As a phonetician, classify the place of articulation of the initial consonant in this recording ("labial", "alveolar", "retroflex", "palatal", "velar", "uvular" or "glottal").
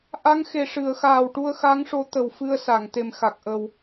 glottal